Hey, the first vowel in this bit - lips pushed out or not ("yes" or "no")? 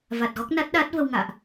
no